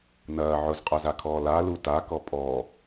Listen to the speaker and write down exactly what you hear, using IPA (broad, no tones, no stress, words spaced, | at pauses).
nɐː ʕʊzqʼœzakʰɔː lalu takɔ pʼɔː